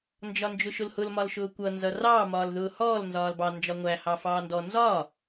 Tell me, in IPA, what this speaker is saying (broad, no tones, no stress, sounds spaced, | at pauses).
n d͡ʒ ɒ n d͡ʒ ʊ ʃ ʊ l h ʊ l m ɒ l ʃ ʊː kʷ ʌ n z ʌ r ɑ m ɒː l ð ʊː h ɔː l n z ɒː l b ɑ n d͡ʒ ɒ ŋʷ æ h ɑ f ɑː n d ɔ n z ɒː